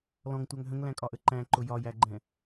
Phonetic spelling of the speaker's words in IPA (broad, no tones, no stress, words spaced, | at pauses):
lɔ̃ŋtʷæŋ ɦə̃ŋlæ̃kʼɒʔə ǃæ̃ǃʊ jɒjæɡ͡ǃɛ̃